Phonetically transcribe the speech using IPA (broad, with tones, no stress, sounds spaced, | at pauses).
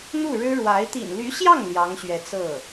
n̪ u˥˩ ɻ ɻ̩˥ ɻ w a˧˥ ɪ̯ t̪ ḭ˨˩ n l y˧˥ ɕ j ɑ˥˩ ŋ l j ɑ˧˥ ŋ ɕ ɥ ɛ˧˥ t͡s ɤ˥˩